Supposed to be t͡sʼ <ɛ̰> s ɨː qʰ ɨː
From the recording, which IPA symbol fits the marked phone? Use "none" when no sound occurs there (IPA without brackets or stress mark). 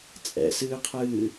ɛ̰